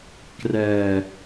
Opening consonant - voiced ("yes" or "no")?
no